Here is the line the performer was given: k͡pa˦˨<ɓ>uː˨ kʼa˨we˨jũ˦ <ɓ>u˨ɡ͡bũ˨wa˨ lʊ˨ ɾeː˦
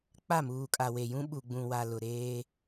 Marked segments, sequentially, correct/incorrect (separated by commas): incorrect, correct